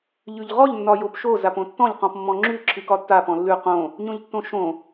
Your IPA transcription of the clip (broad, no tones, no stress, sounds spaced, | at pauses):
ʎ ʉ ʎ ʁ ɔ ʎ nː ɒ j o p ʃ o z a p õ tː ɔ̃ ʎ q ɔ̃ p mː ɔ̃ ŋ͡ǁ ʉ ǁʰ ɨ k ɒ tː a p ɔ̃ lː ʉ q õ | ɲ õ ʎ tː õ ʃ õ